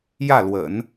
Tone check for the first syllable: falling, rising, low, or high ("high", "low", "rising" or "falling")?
falling